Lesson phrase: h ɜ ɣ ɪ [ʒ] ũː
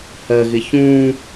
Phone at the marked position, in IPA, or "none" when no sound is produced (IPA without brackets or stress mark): ç